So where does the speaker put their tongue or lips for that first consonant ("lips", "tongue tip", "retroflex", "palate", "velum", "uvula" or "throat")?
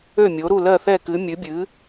lips